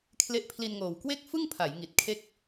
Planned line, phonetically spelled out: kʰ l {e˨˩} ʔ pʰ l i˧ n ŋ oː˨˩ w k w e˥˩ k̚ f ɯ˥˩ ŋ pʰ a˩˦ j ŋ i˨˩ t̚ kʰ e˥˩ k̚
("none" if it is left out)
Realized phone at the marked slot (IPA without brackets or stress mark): e˦˥